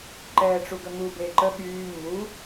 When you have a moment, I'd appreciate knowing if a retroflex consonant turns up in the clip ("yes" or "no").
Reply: yes